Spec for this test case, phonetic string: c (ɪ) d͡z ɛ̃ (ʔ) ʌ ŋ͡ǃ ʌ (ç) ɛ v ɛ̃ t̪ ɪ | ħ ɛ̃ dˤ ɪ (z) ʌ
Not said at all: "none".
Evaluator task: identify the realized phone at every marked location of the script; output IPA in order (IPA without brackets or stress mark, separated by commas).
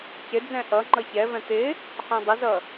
ɪ, ʔ, ç, z